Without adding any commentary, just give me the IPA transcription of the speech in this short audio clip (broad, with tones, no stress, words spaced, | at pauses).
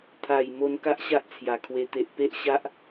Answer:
t̪ʰa˨˩j mo˧n ka˦ʔɕa˦ʔt͡sʰja˨˩ kʰwe˧ t̪e˨ʔ pe˦ʔɕa˦ʔ